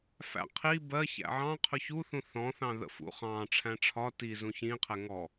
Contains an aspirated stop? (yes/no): yes